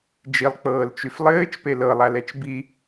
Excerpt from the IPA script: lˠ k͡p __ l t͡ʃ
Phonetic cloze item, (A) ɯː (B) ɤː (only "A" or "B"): B